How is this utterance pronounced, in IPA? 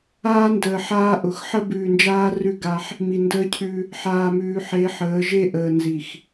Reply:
aː˦ n d əː˨ ħ aː˦ ʔ ʊ˨ x ħ ə˦ b ʉː˨ n d͡ʒ aː˦ r ʉ˦ ɡ a˦ ħ | m i˨ n d əː˦ cʰ ʉ˦ | ħ aː˨ m ʉː˨ ħ e˨˦ ħ əː˨˦ ʒ e˦ ʔ əː˨ n z i˨ x

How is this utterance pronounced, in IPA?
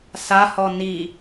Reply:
s a h ɔ n i

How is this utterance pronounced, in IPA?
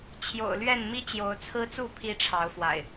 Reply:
t͡ɕʰ j o̰˨˩ ʊ̯ l ɥ ɛ˥˨ n m i˦ t͡ɕ j o˨˦ ʊ̯ t͡sʰ ɹ̩˦ t͡s u˥˨ pʰ i˦ ʈ͡ʂʰ ɑ˨˦ ʊ̯ f w a̰˨˩ ɪ̯

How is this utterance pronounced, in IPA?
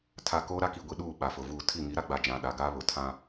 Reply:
tʰ a˨ k oː˦ ɾ a˦ k i˨ ɡʷ i˨ ɗ uː˦˨ ɓ a˨ f ʊ˨ v uː˦˨ tʰ i˦˨ ŋ i˨˦ ɾ a˦ ɡ͡b a˨ d͡ʒ ã˨ ɗ a˨ ɡ aː˦ β ʊ˨ tʰ ã˦

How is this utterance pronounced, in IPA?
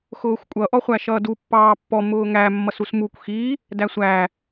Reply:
x ʊː xʷ kʷʼ ʌ ʔ ɔ χʷ æ ʃ ʌː d u pː ɑː pː ɔ m ʊː ŋ æ mː ʌ s u s m u kʷ x i | d æ sʷ æ

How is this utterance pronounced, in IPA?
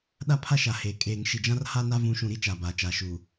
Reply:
ɗ a˦ pʰ a˦ ʃ a˨ h eː˨ kʼ eː˨ ŋ ʃ i˨ d͡ʒ ã˦ r h a˦ n a˦ v ũ˨˦ ʃ ũ˨ ɾ i˦ t͡ʃ a˨ b aː˨ t͡ʃ aː˨ ʃ uː˨

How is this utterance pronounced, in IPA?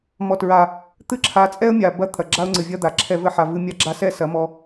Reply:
m ɔ˨ t ɹ a˨ | t̪ ɨ˦ ǁʰ a˨˦ t͡sʼ ɛ˦ ə̯ mʲ a˨ b ɐ˦ t̪ʰ ɐ˨ ɡ͡ǁ a˦ ʊ̯ ŋ͡ǀ ɨ˨ vʲ ɐ˧ d̪ a˨ ǁʰ ɛ˧ v ɘ˧ ħ a˨ v ɨ˧ mʲ a˧ ɡ͡ǁ a˧ s ɛ˦˨ s ɐ˨˦ m ɔ˧

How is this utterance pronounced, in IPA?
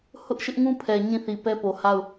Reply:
h ʊ˦ ʔ ʃ ɪ˦ ʔ ŋ ũ˦ pʰ ɛ˨ ɲ ĩ˦˨ θ i˨ p ɛ˦ p o˨ h a˦˨ ʊ̯

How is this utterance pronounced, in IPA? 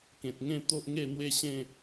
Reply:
k ẽ˨ t̚ ŋ ẽ˥˧ t̪ o˦ ʔ ŋ e˥˧ n̪ w e˦ ɕ ẽ˥˧

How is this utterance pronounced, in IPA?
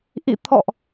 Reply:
ʔ ḭ˧˨ t̪ʰ ɔ̰˧˨ ʔ

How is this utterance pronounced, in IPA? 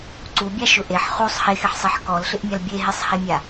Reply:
ǀ u bʲ a ʃ ʊ ʔ e ħ χ u sˤ h e x ɪ ħ sˤ e ħ k ɔ l ɬ ɪ ʔ mʲ a l bʲ e ɦ e sˤ h e mʲ a

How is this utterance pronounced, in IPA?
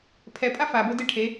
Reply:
pʰ ɛ pʼ a f a b o d e ʈʰ e

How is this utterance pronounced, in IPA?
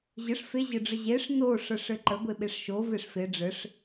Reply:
ʑ ɘ ʂ f e ʑ ɘ ɖ͡ʐ ə ʑ e ʂ n o ʂ ə ʂ ɘ ǃ ə ɡʷ e ɓ e ʂ ʃ o v e ʂ f e ɖ͡ʐ ɘ ʂ

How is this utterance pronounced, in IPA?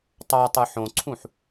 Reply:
tˤ ɑ tˤ ɯ ħ õ ǀʰ ũ ħ

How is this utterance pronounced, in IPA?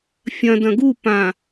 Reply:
fʲ ɐ̃ d ɐ̃ ɡ u p ã

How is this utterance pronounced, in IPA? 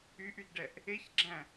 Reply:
y ʔ y d ɖ ɛ ʔ | e ç ɡ͡ǁ æ̃

